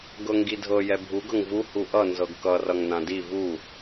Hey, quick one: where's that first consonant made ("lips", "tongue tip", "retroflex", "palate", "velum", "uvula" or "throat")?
velum